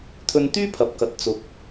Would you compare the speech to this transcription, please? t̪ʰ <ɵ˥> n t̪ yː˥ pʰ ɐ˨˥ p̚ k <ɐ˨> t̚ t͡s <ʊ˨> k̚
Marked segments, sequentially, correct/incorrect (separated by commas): incorrect, correct, correct